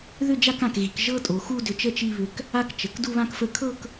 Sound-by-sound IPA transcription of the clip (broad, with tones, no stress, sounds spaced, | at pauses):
ð ʏ˥˧ d͡ʒ a˥˧ k ã˧˩ k ɣ i˩˧ k ʒ ɤ˥ tʼ o˩˧ x u˥˧ d ʏ˧˩ t͡ʃ ə˥˧ t͡ʃ i˥˧ β ʏ˧˩ k | a˥˧ k t͡ʃ ə˩˧ k d u˥˧ β ã˥˧ k f ə˧ kʰ ɤ˥˧ k